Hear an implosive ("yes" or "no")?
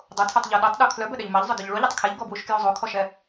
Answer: yes